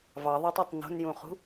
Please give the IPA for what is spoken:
v ɑ ðˤ æ tˤ æ tˤ n o̤ n j ũː χ ṳ

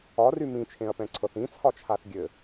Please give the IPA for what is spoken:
ɒ r y m ĩ t͡ʃʰ ẽ ɐ̯ p ɛ̃ ǀʰ ɤ θ ĩ t͡sʰ ɒ t͡ʃʰ a θ ɡʲ ɘ

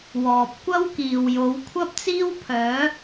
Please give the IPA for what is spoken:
w ɔː˨ p̚ kʷ ɐ˥ w k iː˨ w j o˨˧ w kʷʰ ɐ˥ p̚ t͡s iː˥ w pʰ œː˨˧

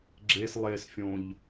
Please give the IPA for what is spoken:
ɡ͡ǁ e s lˠ e s fʲ õ ʎ

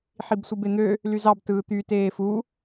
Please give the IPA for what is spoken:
ħ i b sʷ ɯ b e n̪ ø | l y z ɑ b t ɯː t̪ y t eː f u

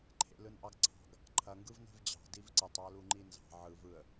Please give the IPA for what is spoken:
ǃʰ ḛ l ɯ n ʔ ɑ ɡ ǀʰ ɑ̤ ɡ | ǃʰ ɐ ŋ ɡ ɯ v n e̤ v d͡ʑ ɑ̤ d i v ǀ ə tˤ ɑ l u ŋ͡ǃ i n z ɑ̤ ʕ ɯ v ɯ ə̯

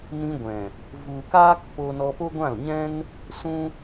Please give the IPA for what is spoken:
n ĩ˧ ɡʷ ɛ̃˨ | v u˨ k aː˦ k p o˧ n ɔ˧ p o˦ ɡʷ ã˦˨ l ɲ ɛ̃˦ n | s ũ˦

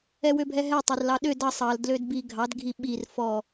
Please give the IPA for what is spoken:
ɛ w ø bʱ ɛ ɦ ɛ tˤ ɑ r l ɑ ɗ ø d ɑ sˤ ɑ l d l ø d b i ɡʱ ɑ d ɡʱ i ɓ i r f ɔ

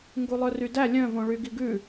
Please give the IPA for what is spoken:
ŋ ɡ u lˠ œ r y d æ lʲ œ̃ v õ ɭ y ɡ i ɡ ʉ

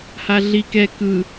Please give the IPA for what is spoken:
h a ɮ i k ɛ k ɯ

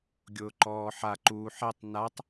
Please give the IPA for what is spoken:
ɡʲ ʊː ǃ ɔː ħ a ǃ uː ħ ɛ tˤ n a tˤ

